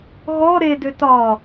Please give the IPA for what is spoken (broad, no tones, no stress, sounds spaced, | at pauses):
ɣ ɔ ɾ e d ø t ɒ